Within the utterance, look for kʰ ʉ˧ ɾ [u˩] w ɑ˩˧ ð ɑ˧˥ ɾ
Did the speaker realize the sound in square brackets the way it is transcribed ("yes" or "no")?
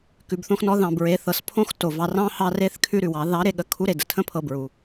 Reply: no